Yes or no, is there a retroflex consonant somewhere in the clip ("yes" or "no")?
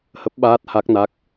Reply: no